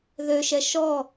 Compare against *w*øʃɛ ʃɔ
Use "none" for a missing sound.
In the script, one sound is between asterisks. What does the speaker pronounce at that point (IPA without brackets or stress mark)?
ð